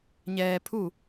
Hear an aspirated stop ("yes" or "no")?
yes